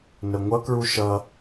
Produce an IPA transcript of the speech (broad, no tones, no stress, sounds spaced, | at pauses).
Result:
n ə ŋʷ ʌ k ɹ u ʃ ʌ